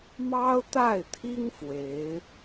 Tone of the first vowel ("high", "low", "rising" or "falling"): high